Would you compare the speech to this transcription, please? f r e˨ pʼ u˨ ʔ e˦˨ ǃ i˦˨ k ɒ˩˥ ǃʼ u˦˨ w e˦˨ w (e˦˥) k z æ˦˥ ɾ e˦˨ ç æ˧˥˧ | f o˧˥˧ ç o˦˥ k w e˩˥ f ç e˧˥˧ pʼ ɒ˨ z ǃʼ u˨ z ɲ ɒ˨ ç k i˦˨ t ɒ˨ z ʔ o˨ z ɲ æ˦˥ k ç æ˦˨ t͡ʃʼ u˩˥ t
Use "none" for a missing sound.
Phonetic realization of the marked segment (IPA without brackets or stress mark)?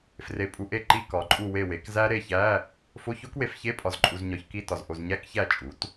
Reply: e˩˥